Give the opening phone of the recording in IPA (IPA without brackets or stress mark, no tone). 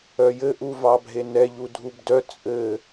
œ